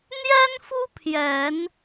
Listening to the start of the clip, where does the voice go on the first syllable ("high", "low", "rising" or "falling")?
high